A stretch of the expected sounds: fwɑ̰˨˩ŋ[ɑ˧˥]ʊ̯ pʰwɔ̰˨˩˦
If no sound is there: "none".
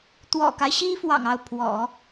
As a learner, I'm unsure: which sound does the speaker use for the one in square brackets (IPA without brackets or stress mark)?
ɑ˥˩